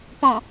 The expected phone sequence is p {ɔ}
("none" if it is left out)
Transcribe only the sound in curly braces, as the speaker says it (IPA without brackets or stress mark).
ɔ̃